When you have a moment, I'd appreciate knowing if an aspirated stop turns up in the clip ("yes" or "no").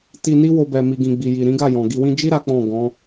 no